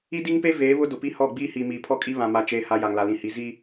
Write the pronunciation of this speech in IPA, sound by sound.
i˦ d i˦ ŋ p e˦ v eː˨˦ β ʊ˦ d ʊ˨ p i˦ h ɔ˦˨ ɡ͡b iː˦ h iː˨ m iː˨ pʰ ɔ˦ kʼ i˦ β ã˨ m a˨ t͡ʃ eː˨ h a˨ j a˨ ŋ l a˨ l ĩ˨ h i˨˦ z i˦

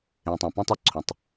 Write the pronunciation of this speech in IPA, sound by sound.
ẽ˨ tˤ õ˨ p ũ˦ tˤ ʌ˦ ǀʰ õ˨ tˤ

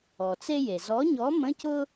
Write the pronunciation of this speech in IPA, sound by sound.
ɔ˩ t͡s e˥ j e˩ z ɔ˨˥ ɲ ɔ˨˥ m ə̃˧˥˧ c ʊ˥

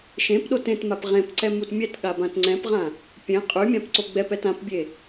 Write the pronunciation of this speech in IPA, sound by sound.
ʃ ẽ p ɗ o t ẽ t m a p ʁ ẽ p ǀ ɛ m u t mʲ ɛ t ɠ a b ã t ŋ͡ǀ ɛ̃ p ʁ ã | pʲ ẽ qʼ y mʲ ã p ǀ o ɡ͡b ɛ p ɛ t ã p bʲ e

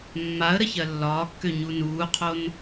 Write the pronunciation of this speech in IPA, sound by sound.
mː a ə̯ ɾ ə ç ɜ lː ɒː kː ø ɲ u n uː qʰ o n

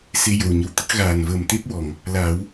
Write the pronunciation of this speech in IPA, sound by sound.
s e˧ j ə˨˩ w ɲ ə˨˩ w t̪ ə˦˥ k̚ ɣ aː˨˩ n v əː˨˩ m t̪ e˦˥ p̚ w ɔ˨˩˨ ŋ | l a˨˩˦ w

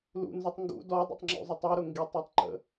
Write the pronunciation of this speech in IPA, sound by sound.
l ṵ n z u tˤ ŋ ɡ ṵ d ɔ dˤ ṵ tˤ ŋ͡ǁ ṵ zˤ ə tˤ i ɾ ʊ ŋ ɡ i tˤ ɒ tˤ ǃ ə̰

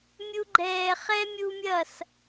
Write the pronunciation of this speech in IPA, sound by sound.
mʲ u˧ ɡ͡ǃ ɛː˨ χ ɛ˦ mʲ u˧ mʲ ɐ˦˨ s

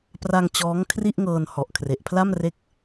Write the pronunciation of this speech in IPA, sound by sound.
p r a˧ ŋ t͡ɕ ɔː˦˥ ŋ kʰ r i˥˩ ʔ ŋ ɤː˧ n h ɔ˨˩ ʔ kʰ r e˨˩ ʔ pʰ l a˥˩ m r e˦˥ k̚

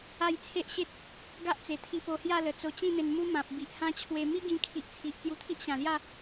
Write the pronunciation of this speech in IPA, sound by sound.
a˥˧ j t͡sʰ e˦ ʔ ɕ e˦ t̚ | ɡ a˦ ʔ t͡s e˨˩ t̪ʰ i˧ p o˧ h j a˥˧ l ə˨˩ t͡s o˧ t͡ɕ ĩ˥˧ n̪ e˧ n m u˦ m ã˨ p̚ b i˨ ʔ h ã˦ t͡ɕʰ w e˧ m i˦ ɡ ĩ˧ kʰ i˨ ʔ t͡sʰ i˨ ʔ t͡s j u˧ t̪ʰ i˦ ʔ ɕ ã˨˩ l j a˥˧

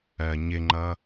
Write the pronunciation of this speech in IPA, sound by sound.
ɜ ɲ ɪ ŋ͡ǃ ʌ

